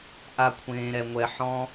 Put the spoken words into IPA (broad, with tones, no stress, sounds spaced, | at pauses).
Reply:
ʔ a˦ kʷʰ ẽː˧ ɾ ɛ˧ ŋʷ ɛ˧ ħ ɔ̃˦